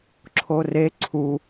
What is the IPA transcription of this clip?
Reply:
ǁʰ o r e ǀʰ u

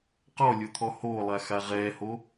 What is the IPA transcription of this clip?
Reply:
q ɔ lʲ o t̪ʰ ɔ h oː lˠ a x a ʁ ɛː h o

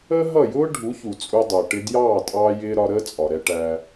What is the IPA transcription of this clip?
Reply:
əː˦ ɦ ʌ˦˨ j ʊː˦ ɖʱ u˨˦ ç u˨ t͡sʼ u˧ dˤ ʊː˨ ʈ ɪ˧ d j ɑː˦˨ tʼ ɑː˧ j ɪː˧ ɾ ɒ˧ ɾ əː˦ t͡sʼ ɒ˨ ɾ ɛ˧ ʈ æ˧

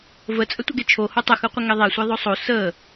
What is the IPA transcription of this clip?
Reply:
v ə t͡sʼ ə tʷ ə ɡ e t͡ʃʰ o h o tˤ ə x ɯ qʷ ə ŋ e ðˤ e sʷ e ðˤ o sˤ o s ə

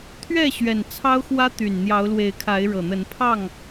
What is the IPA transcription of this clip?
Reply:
t̪ʰ ɥ ɛ˥˨ ɕ ɥ ɛ˨˩ n t͡sʰ ɑ˦ ʊ̯ x w ä˦ t̪ y˨˩ n n̪ j ɑ˨˦ ʊ̯ l w e˨˦ ɪ̯ kʰ a˨˦ ɪ̯ ɻ ɤ˨˩ n̪ ə˨˦ n pʰ ɑ˥˨ ŋ

